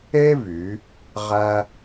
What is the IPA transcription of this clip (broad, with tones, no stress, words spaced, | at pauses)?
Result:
e˥vy˩˧ | ʁæ˥